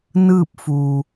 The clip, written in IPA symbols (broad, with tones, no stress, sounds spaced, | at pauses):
n ɯː˥˨ p̚ f uː˩